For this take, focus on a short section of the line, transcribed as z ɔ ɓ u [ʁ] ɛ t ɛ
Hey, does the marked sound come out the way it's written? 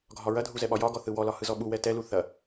no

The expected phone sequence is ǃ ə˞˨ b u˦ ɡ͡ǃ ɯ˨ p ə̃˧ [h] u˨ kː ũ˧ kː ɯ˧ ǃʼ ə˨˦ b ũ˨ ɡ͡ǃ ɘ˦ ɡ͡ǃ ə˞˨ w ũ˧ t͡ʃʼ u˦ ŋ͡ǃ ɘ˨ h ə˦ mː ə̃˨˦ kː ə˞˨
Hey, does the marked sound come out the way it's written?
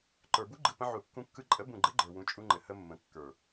no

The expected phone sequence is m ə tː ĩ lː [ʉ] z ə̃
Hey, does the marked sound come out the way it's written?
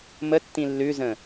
yes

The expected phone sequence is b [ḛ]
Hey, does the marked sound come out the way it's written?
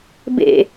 yes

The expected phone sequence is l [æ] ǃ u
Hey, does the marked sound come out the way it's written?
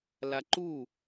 no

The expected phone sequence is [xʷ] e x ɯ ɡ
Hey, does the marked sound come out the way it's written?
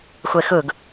yes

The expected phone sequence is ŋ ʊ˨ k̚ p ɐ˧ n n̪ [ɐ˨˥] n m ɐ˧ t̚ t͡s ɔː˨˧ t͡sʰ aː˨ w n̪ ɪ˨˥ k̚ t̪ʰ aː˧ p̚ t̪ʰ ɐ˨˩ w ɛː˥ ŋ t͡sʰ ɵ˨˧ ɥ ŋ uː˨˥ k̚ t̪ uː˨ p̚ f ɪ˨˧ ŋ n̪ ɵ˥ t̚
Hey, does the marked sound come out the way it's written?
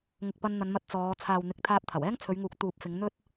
no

